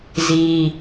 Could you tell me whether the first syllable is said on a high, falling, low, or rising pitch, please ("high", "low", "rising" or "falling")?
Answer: high